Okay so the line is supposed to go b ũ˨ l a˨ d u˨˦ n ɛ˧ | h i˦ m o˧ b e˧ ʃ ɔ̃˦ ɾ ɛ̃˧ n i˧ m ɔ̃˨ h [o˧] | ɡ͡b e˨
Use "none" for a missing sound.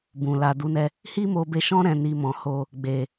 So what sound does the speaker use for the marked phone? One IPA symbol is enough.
o˧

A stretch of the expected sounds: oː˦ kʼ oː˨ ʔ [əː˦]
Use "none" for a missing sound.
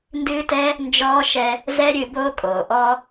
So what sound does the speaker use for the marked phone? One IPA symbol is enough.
ɔː˦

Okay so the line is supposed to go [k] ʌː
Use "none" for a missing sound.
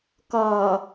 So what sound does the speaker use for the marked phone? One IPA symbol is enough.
k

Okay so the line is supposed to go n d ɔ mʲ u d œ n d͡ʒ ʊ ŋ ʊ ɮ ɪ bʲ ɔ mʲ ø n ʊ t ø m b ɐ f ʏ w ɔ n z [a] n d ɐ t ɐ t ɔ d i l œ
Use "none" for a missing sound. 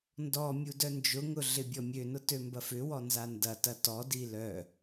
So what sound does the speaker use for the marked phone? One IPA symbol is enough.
a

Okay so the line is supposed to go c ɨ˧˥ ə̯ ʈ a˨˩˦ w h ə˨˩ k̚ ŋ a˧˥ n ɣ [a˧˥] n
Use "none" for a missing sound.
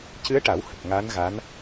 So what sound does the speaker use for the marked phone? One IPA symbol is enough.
a˧˥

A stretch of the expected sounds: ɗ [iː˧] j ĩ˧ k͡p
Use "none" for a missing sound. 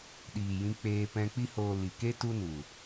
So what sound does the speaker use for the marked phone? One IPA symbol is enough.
iː˨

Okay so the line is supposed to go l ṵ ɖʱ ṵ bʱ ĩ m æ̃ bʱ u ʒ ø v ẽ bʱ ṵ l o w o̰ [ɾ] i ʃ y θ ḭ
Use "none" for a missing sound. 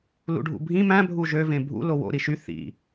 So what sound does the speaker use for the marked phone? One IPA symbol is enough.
ɾ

